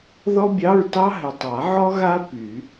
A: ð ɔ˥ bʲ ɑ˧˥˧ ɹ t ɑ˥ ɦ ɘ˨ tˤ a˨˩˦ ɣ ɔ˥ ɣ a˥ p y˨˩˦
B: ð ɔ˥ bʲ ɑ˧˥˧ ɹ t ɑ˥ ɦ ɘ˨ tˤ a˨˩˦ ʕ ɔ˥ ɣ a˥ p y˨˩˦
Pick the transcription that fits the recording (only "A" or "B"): B